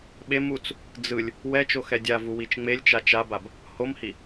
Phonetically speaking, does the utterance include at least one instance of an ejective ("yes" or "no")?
no